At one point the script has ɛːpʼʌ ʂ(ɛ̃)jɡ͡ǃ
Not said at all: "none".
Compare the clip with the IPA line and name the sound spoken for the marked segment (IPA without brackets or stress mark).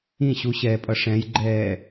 ɛ̃